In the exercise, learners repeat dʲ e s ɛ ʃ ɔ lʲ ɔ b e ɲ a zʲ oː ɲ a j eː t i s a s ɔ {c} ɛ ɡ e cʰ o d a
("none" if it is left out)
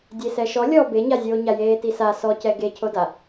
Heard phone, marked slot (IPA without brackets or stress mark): c